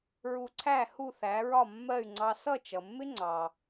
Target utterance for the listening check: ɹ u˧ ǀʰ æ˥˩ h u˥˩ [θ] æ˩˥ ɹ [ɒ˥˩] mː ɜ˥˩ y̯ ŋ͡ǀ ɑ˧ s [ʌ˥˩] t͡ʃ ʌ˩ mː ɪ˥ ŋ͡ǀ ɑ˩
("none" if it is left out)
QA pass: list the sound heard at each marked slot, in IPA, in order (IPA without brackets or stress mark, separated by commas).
θ, ɒ˥˩, ʌ˥˩